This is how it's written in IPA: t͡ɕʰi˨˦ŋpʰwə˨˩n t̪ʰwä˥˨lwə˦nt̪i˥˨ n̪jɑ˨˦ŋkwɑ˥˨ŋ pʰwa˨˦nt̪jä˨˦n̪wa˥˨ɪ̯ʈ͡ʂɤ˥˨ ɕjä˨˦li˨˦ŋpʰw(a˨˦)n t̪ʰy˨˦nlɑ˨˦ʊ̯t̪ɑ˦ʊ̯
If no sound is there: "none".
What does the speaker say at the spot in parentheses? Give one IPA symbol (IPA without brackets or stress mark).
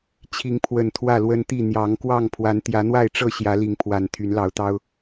a˨˩